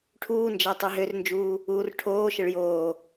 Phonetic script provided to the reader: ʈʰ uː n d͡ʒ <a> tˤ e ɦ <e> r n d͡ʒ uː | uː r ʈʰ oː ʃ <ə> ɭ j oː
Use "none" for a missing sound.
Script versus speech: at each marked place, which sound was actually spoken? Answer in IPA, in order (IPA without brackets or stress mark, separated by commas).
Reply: a, ø, ə